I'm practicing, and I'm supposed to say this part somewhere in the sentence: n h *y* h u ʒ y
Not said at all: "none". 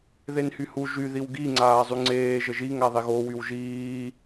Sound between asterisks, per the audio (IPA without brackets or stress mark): y